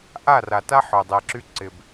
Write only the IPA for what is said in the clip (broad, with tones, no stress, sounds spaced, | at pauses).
ʔ a˦˨ r a˨ t a˦ ħ œ˨ dˤ ɛ˨ ǁ y˦ ǀ ɪ˨ b